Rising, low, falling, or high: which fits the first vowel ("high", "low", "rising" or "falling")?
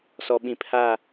low